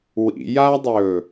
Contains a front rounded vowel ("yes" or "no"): no